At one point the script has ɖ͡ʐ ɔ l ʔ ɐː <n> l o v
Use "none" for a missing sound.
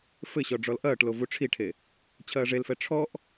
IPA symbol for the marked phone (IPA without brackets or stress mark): ʈ